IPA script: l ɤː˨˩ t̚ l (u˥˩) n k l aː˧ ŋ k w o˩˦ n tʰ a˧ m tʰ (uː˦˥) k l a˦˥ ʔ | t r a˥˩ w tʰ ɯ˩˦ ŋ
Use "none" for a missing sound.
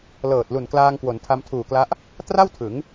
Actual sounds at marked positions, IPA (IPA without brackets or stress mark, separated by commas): u˨˩, uː˨˩